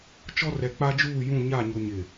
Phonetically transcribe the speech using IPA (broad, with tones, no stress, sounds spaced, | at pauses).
t͡ʃ ɔ˦ r ɛ˨ k͡p a˦ d͡ʒ uː˦˨ j ũ˦˨ ɲ a˦˨ ɲ ʊ˨ ɲ ɪ˨